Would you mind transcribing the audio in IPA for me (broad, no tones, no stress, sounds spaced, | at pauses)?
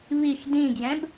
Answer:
β i x d ĩ ɡ j ɛ̃ b